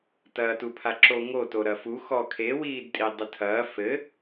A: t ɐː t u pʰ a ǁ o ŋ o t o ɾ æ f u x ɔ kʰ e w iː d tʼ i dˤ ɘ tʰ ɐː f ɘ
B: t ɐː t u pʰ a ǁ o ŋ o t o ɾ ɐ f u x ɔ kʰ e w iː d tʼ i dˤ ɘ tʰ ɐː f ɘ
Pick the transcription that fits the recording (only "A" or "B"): B